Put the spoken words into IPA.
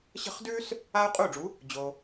ɕ ə̤˥˩ χ d ʉː˥ s | aː˥ u̯ qʼ uː˥˩ ɖ͡ʐ u˩˥ | d͡ʑ o˩

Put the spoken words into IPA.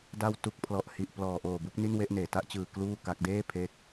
d a˦˥ w t u˨˩ k̚ pʰ l ɔ˨˩ ʔ h i˨˩ ʔ p l ɔː˨˩ ʔ oː˨˩ b u˦˥ k̚ n i˥˩ n w e˥˩ ʔ n eː˩˦ t a˦˥ ʔ t͡ɕ ɯː˨˩ k l uː˥˩ k a˦˥ k̚ d eː˥˩ pʰ e˦˥ k̚

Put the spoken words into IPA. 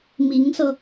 m i˧˥ ŋ s ɤ˧

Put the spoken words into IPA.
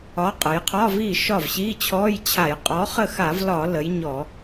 ɒ˨˥ qʼ ə˩˧ j qʰ ɒ˧˥˧ v i˥˩ ʃ ɒ˥˩ v ɕ i˧˥˧ t͡ɕʰ ɔ˧˥˧ j t͡ɕʰ a˧˩˧ j qʼ ɔ˨˥ χ ə˥˩ x a˧˩˧ v l ɒ˧˩˧ l ə˩˧ j ɲ ɔ˧˩˧

